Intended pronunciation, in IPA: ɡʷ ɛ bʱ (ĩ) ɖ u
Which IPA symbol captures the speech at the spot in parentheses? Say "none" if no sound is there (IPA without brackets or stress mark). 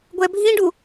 ĩ